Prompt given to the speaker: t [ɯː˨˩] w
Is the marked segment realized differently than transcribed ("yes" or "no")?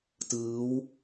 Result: yes